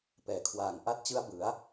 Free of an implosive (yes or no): yes